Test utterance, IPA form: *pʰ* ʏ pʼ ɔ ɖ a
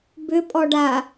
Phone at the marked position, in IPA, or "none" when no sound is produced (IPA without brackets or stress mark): b